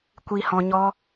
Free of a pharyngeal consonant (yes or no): yes